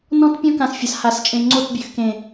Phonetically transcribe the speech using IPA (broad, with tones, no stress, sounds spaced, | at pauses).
n ɔ̃˦ t pʲ ɔ̃˦ k ã˨ s fʲ a˨˦ s h a˨ s t͡ʃʼ ẽ˨ ŋ͡ǀ o˦˨ t bʲ ø˨ x k ẽ˨